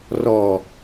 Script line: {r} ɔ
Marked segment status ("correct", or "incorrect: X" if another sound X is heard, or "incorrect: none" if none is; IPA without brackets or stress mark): correct